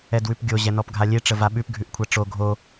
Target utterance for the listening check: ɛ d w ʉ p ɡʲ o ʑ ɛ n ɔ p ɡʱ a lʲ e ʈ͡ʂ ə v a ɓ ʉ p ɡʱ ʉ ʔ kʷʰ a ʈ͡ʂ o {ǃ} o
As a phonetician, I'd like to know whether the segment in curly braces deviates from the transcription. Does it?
yes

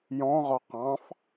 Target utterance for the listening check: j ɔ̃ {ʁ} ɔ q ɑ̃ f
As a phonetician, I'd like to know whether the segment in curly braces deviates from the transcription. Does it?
no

